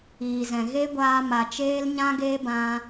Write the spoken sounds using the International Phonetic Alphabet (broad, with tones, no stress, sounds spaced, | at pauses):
iː˨ z ɛ̃˨ ɣ e˦ ɡʷ aː˧ m a˨ t͡ʃ eː˦ l ɲ ã˦ ɡ eː˦ b ã˧